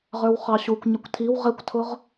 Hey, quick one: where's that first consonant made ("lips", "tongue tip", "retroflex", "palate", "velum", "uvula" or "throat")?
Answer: uvula